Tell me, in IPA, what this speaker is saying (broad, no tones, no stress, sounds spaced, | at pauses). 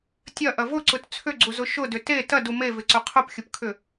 tʲ ɐ ʔ ɐ v ʊ ǀ ʊ t t͡sʰ ʏ ɡ͡ǀ u z ʊ ʃ ʊ d ʏ t e t ɐ d u m e v ɪ ǀ ʊ qʰ ʊ p xʲ ʊ p kʰ ʏ